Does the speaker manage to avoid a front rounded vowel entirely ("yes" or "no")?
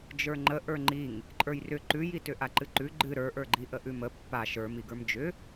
no